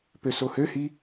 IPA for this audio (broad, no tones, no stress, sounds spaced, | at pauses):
p ø s o h ø h i